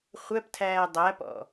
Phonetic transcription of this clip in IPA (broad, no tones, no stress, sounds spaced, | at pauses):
χʷ æ p tʰ æː dˤ æ p ɔ̰